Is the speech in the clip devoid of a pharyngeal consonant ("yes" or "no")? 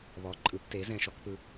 yes